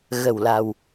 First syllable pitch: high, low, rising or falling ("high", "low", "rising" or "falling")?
low